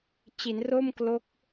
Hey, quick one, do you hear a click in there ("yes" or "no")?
no